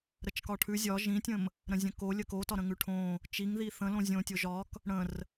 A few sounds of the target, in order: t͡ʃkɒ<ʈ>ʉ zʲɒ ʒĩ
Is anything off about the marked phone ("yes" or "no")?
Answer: yes